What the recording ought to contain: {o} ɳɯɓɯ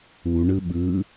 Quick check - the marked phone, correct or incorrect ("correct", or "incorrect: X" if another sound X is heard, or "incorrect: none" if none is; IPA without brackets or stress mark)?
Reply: incorrect: u